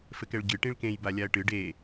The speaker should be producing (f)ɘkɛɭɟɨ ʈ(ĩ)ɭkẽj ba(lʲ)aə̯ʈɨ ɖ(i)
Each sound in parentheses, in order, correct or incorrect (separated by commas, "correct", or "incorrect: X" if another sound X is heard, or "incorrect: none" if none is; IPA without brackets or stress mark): correct, correct, correct, incorrect: e